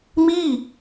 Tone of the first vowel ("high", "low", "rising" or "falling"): falling